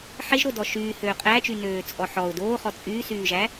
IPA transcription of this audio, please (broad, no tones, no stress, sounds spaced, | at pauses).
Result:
ħ e ʒ ɾ o d ɔ ʃ yː h øː qʼ æ t͡ʃ y n øː t͡sʼ ɔ ħ ɔ ʊ̯ d oː χ ɔ t͡sʼ yː s yː ʒ æ